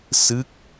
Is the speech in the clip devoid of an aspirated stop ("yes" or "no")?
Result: yes